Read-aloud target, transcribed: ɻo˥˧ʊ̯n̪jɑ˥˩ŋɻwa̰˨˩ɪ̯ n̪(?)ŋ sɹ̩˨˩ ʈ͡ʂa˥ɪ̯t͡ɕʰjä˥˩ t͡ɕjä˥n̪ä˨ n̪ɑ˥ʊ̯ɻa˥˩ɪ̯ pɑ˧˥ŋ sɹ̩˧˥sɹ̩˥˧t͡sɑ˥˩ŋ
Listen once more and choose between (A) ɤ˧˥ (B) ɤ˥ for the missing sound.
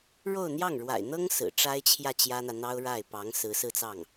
B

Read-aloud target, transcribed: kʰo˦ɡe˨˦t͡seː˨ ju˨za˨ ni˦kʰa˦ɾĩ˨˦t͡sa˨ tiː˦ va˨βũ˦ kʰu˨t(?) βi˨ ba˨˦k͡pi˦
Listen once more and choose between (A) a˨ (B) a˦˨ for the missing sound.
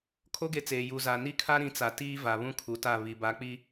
B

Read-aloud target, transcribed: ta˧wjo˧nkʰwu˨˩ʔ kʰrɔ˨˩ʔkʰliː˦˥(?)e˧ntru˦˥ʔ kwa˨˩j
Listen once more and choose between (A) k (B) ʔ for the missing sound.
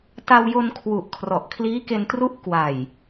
A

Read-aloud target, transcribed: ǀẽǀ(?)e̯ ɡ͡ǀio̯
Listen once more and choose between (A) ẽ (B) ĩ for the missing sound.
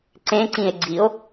B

